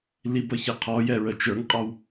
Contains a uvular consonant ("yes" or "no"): yes